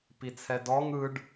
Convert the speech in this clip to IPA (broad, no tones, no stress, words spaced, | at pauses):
pit͡sʰɛdɔŋ ɯɖ